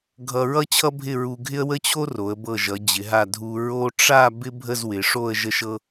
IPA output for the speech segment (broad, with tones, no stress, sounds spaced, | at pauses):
ɡʱ ʌ˧ ɹ ʌ˥ t͡ɕʰ ʌ˥ bʱ ɪ˥˧ ɹ u˧ ɡʱ ɪ˥ ə̯ w ə˥ t͡ɕʰ o˥ r o˩˧ ə̯ b ɤ˧˩ ʒ ʌ˩˧ d͡ʑ ɪ˩˧ ɦ a˧˩ dʱ u˧ ɹ o˥ ʈ͡ʂ a˥˧ b ɪ˥ bʱ ə˥˧ z w ɪ˩˧ ʂ o˥˧ ə̯ ʒ ə˧ ʃ ɤ˧